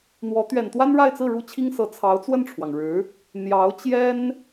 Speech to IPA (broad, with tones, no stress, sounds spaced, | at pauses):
n̪ w ɔ˧˥ t̪ ɥ ɛ˨˩ n t̪ w a˥ n ɻ a˥˧ ɪ̯ t͡s ɹ̩˥˩ ɻ u˥ t͡ɕʰ i˥ ŋ s ɤ˧˥ t͡sʰ ɑ˧˥ ʊ̯ t͡s w ə˥˩ n ʈ͡ʂʰ w ɑ˩ ŋ ɻ ɻ̩˧˥ | n̪ j ɑ˧˥ ʊ̯ t͡ɕ j ɛ˥ n